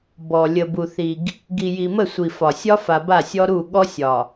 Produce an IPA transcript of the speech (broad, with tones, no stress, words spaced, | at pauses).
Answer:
bɔ˨ lʲə˨bu˨θi˨ɡ | ɡi˨ji˨mə˦˨ sʷi˨fɒ˨ sʲɒ˦fa˨ ba˦˨sʲɔ˦ɾu˦˨ ɠɔ˦sʲɒ˨